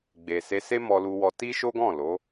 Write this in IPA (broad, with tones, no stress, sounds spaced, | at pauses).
ɡ͡b e˨ s e˧ s e˦ m ɔ˧ l u˧ w ɔ˧ t i˦ ʃ o˦ ɡ ɔ̃˦˨ l o˨˦